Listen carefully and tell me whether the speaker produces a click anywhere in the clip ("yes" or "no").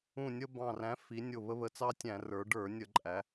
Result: yes